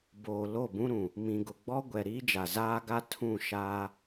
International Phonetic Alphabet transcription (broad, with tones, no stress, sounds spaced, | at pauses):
b oː˨ l o˦˨ b ũ˦ ɾ ũ˨ | m ĩ˨ ɡ ʊ˨ ɡ͡b ɔ˦ ɡʷ ɛ˨ ɾ iː˦ d͡ʒ a˨ z aː˦ ɡ a˦ tʰ ũ˦˨ ʃ aː˦